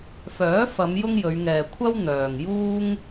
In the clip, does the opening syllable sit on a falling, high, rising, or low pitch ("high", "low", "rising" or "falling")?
rising